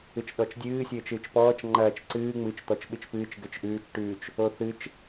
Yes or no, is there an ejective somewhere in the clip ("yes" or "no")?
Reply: no